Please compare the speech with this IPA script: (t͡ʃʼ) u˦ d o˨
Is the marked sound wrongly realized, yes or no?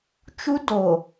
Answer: yes